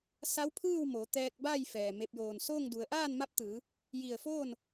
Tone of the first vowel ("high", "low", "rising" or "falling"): rising